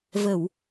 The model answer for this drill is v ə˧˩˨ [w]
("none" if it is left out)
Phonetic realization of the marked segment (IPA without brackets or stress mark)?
w